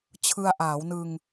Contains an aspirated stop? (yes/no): yes